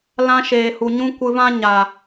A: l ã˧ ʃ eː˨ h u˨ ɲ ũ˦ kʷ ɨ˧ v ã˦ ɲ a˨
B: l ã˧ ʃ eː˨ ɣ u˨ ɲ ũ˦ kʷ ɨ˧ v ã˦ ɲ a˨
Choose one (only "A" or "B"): A